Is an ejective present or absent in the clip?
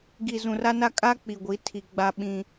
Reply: present